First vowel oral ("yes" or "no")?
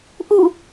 yes